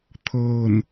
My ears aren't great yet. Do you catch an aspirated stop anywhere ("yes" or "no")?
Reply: yes